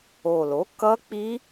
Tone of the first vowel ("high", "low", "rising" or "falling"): low